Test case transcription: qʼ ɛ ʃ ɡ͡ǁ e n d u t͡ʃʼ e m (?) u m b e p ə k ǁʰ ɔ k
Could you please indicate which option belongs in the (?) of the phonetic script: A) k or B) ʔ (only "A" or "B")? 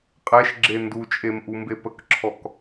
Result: B